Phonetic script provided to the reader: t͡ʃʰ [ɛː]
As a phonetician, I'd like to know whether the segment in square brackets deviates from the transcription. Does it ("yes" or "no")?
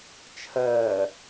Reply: yes